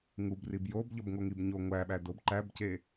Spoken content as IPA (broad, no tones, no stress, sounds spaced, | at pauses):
ŋ u b r i b j o b ʎ ɒ b ŋ o ŋ i b ɲ o ŋʷ æ ɓ æ d o b ǃ æ b c e